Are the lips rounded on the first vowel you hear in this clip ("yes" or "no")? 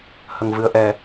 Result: no